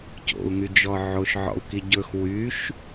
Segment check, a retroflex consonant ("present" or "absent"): absent